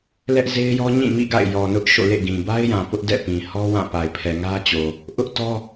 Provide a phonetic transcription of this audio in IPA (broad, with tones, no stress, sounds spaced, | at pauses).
l ɛ˦ ʔ z e˦ ɪ̯ j ɔ˦ ɲ ĩ˦˨ m ḭ˦˨ ɡ a̰˦˨ ɪ̯ j ɔ˨ n ʊ˦ ʔ ʃ o̰˦˨ l ḛ˦˨ ɡ ĩ˨ b a˦ ɪ̯ j ã˨ p ʊ˦ ʔ d ɛ̰˦˨ p ĩ˨ h ɔ˦ w ã˦˨ p a˨ ɪ̯ pʰ ɛ˨ ŋ ä˦ t͡ɕ o˨ | ʔ ʊ˦ ʔ t ɔ˦